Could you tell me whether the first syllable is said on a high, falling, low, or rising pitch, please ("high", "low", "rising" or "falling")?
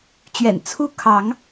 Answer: low